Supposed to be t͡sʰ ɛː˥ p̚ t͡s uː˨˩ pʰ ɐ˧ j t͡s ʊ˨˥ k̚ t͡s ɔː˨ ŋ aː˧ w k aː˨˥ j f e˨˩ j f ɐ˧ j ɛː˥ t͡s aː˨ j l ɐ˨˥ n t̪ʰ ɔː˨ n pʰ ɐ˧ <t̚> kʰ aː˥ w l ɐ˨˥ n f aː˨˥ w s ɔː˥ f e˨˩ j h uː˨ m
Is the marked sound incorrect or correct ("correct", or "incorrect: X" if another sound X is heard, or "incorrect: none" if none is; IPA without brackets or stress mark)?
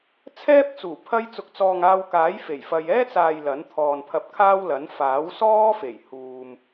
incorrect: p̚